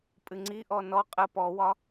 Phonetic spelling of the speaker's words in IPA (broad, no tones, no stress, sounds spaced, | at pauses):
pʼ ɨ ŋ͡ǀ i ʔ ɔ n ɔ qʼ ə p ɔ w ɒ